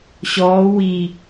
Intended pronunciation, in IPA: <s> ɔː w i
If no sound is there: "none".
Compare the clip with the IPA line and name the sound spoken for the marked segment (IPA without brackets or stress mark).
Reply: ɕ